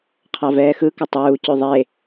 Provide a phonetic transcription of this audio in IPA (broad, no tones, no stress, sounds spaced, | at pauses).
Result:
qʰ ɑ v ɛː x ɯ k ɘ tˤ uː c ʉ ðˤ e